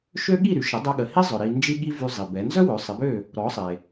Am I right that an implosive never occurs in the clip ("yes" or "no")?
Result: no